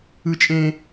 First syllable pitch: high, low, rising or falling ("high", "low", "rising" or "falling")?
high